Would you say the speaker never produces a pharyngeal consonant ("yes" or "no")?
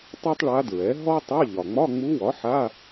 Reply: no